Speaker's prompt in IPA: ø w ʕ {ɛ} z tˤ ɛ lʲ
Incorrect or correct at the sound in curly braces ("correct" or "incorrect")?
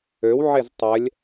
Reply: incorrect